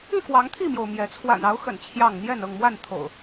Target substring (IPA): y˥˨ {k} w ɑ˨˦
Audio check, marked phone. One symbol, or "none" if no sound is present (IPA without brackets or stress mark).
k